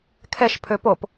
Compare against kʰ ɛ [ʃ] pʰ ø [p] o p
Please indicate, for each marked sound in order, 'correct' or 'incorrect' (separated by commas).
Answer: correct, correct